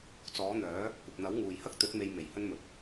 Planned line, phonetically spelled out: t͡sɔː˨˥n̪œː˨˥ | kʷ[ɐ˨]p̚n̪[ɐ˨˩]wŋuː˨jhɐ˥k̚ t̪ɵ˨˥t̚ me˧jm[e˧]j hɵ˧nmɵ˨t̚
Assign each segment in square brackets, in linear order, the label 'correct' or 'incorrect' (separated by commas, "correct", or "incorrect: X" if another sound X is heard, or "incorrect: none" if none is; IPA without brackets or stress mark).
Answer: correct, incorrect: ɐ˨˥, incorrect: e˨˩